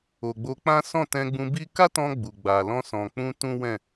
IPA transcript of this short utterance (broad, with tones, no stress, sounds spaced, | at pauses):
o˨ ɡ͡b o˧ k͡p ã˦ s ɔ̃˦˨ t ɛ̃˧ ɡ͡b ũ˧ b i˦ k a˦ t ɔ̃˧ ɡ͡b u˨ ɡ͡b a˨ l ɔ̃˧ s ɔ̃˨ k͡p ũ˧ t ũ˦ w ɛ̃˦˨